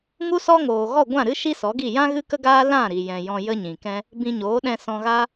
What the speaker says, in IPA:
ŋ u˦ s ɔ˦ ŋ oː˨ ɣ ɔ˦˨ ɡʷ ã˦˨ ɾ ɨ˦ ʃ i˦ s ɔ˨˦ ɡ i˦˨ j ã˦ ɣ ɨ˦ k ə˦ ɡ aː˦ l ã˦˨ ɾ i˨ j ɛ̃˨ j ɔ̃˧ j ə˦ ɲ ĩ˨ k ɛ̃˦ | b ĩ˧ ɲ oː˨˦ ɗ ɛ̃˧ s ɔ̃˧ ɣ a˦

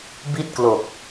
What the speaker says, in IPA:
b i˥˩ t̚ k l o˨˩ k̚

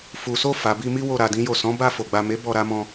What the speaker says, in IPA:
f u˨ s o˧ f a˨ b i˧ m i˦ w o˦˨ ɾ a˨˦ d ĩ˦ j o˦˨ s ɔ̃˨˦ b a˦˨ f o˨ ɡ͡b a˨ m e˨˦ b ɔ˧ ɾ a˧ m ɔ̃˧

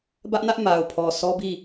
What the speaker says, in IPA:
b ä˦ ʔ n ä˦ ʔ m a˨ ʊ̯ pʰ ɔ˨ s ɔ˦ b i˦˨

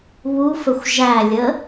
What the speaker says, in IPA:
β u f ə xʷ ʒ æ lʲ ə

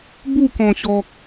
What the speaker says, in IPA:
b u˥˧ k ɔ̃˨˩ ɕ ɔ˨ k̚

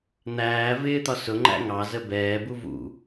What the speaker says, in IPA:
n̪ æː v ɪː t̪ ɒ s ʊ ŋ͡ǃ æ̰ ŋ ɑ z ə b ɛː b u v ṵ

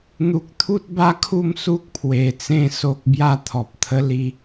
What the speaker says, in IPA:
n̪ u˨ k̚ t̪ʰ u˦ t̚ b a˦ kʰ u˥˧ m s u˦ k̚ pʰ w e˨˩ t͡s ẽ˥˧ s o˦ k̚ b j a˥˧ t̪ʰ ɔ˨ p̚ t̪ʰ ə˦ l i˧

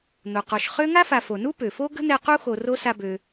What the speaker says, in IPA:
n̪ o˩ q ɔ˨ ʃ χ ø˥ ŋ a˥ f a˨ f o˩ n u˥ p ø˩ f o˥ ɡ ə̤˥ n̪ ɛ˦ q u˥ x o˨ r o˥ s a˦ b ø˨

